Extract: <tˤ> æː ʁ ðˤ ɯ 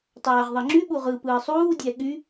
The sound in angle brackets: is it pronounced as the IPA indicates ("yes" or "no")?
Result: yes